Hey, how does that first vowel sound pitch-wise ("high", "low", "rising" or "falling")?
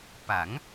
rising